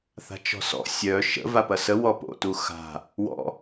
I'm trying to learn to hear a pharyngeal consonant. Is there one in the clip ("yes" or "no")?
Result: no